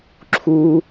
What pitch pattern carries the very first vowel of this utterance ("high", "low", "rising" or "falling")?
high